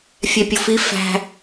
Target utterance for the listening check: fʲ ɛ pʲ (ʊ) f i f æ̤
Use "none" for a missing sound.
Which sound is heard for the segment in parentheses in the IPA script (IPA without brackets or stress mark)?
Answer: ʊ